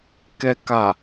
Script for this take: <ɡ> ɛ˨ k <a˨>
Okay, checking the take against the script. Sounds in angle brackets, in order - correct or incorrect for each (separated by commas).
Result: incorrect, correct